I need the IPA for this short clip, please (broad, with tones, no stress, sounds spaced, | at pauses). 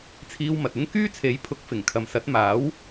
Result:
t͡sʰ iː˧ w m ɐ˨ t̚ ɪ˥ ŋ k yː˥ t͡sʰ e˨˥ j pʰ ʊ˨˥ k̚ f ɪ˨˩ ŋ kʰ ɐ˨ m s ɐ˨˥ t̚ m aː˨˥ w